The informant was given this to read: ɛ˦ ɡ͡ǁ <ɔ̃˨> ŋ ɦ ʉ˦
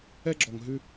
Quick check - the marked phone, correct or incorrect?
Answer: incorrect